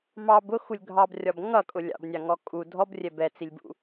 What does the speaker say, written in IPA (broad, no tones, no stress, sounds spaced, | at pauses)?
m ɑ b ʊ x u lʲ ɡʱ ɑ b rʲ ɒ b ŋ ʌ kʼ ʊ lʲ ɑ̰ b nʲ ɑ ŋ ɔ kʼ u dʱ ɔ b rʲ ɛ b ɛ t͡s i lʲ b ṵ